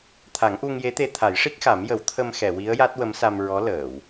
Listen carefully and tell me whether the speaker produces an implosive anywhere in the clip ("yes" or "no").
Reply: no